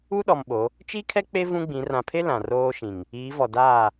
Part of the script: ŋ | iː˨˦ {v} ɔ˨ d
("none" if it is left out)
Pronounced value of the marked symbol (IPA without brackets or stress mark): v